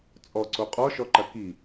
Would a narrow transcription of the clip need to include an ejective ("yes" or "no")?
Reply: yes